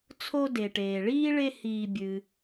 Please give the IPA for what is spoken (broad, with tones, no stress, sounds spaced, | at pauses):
t͡sʰ o˦ d e˩ ʈ eː˩ ɭ iː˥ ɭ e˦ h iː˨ bʲ ɨː˩